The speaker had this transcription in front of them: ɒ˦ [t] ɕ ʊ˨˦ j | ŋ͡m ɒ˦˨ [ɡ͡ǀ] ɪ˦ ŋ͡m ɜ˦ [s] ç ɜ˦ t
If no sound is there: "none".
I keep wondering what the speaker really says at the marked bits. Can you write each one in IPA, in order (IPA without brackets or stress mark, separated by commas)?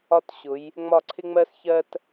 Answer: t, ǀʰ, s